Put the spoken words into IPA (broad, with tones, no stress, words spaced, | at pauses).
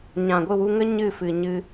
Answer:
ɲã˨ɡʷɨ˦˨wu˧ŋə˦ ɲɨ˦˨fɨ˨ɲɨ˧